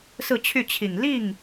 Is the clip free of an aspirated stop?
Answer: no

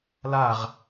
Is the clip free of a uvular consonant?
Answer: no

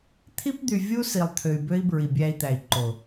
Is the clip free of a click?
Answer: no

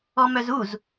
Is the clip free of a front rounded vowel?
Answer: no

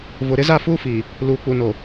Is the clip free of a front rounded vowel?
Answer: yes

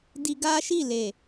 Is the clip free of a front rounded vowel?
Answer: yes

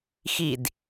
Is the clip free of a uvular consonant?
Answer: yes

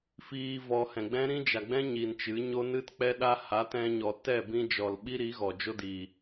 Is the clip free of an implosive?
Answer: no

